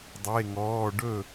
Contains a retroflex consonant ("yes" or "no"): yes